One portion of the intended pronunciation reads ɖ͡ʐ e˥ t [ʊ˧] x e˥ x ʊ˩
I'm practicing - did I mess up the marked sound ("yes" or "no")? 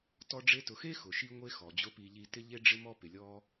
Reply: no